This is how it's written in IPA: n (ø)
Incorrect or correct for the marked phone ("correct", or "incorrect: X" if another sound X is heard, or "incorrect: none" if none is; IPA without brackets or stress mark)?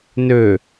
correct